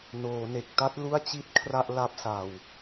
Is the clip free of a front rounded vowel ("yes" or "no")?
yes